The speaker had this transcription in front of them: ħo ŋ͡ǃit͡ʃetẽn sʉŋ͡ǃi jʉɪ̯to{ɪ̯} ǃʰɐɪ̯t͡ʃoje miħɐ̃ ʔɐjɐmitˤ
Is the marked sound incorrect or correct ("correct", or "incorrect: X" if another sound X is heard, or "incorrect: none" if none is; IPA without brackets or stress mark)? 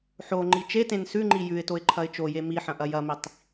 correct